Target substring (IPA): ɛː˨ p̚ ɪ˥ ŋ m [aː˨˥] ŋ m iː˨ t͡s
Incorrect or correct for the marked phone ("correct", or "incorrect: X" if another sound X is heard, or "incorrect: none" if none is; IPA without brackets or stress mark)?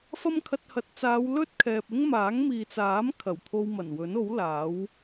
correct